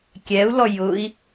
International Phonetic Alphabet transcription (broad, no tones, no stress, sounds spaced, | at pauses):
kʲ ɛ u̯ l ɔ j ʊ i̯